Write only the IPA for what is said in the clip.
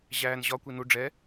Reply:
ʑ æː n ʑ ɒ kʷ i n u ɖ͡ʐ ɛ

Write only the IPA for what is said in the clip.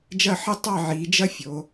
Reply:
d͡ʒ ɐ˥˧ ħ ɘ˥ tˤ ɑ˥˧ ʕ i˩˧ d͡ʒ ɐ˥ fʲ o˩˧

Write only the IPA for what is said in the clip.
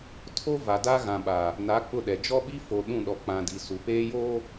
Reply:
tʰ o˦ v a˨ d a˦ ɣ ã˨ ɓ a˨ | n a˨˦ k͡p ʊ˦˨ ɗ ɛ˨ d͡ʒ ɔ˦ ɓ i˦ f o˨ ɗ ũ˦˨ ɗ ɔ˨ k͡p ã˨ d i˨ s u˨ p eː˦ j oː˦

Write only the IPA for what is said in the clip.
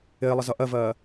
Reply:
ɪː lˠ ə z ʌ ʔ ɜ v ɜː

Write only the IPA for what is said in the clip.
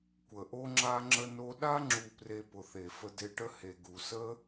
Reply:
kʷ ə˨ ʔ o˦ ŋ͡ǁ a˦ ŋ͡ǁ ə˧ n o˧ ɗ a˦ ŋ͡ǁ u˧ p r e˧ p ʊ˨ θ e˨ f ə˧ d e˧ ʈ ə˦ h e˨ ɡ u˨ s ə˦

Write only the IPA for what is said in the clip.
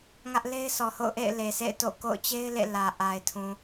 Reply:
ŋ ä˦ ʔ l e˦ ɪ̯ sʰ ɔ˨ h o̰˦˨ ʊ̯ ʔ ḛ˦˨ ɪ̯ l e˨ s ḛ˦˨ ɪ̯ t o̰˦˨ k o̰˦˨ ʊ̯ t͡ɕ e˦ ɪ̯ l ḛ˦˨ l ä˨ ʔ a˨ ɪ̯ tʰ ũ˨

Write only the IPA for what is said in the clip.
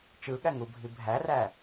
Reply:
t͡ʃ ɯ ɠ æ ŋ u bʱ i bʱ æ r æ

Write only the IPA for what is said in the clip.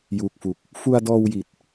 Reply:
j uː˨˩ k̚ f u˨˩ k̚ | f u˧ a̯ d ɔː˧ w j i˨˩ t̚

